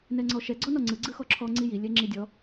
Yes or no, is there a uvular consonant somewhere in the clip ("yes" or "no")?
no